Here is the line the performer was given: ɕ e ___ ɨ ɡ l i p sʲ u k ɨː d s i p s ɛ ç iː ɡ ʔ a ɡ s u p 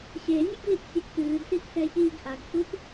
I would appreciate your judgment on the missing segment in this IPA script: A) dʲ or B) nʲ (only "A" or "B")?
B